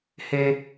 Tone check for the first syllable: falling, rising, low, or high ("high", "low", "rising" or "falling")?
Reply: low